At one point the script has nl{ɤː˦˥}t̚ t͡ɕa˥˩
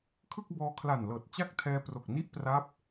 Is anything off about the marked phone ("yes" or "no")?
yes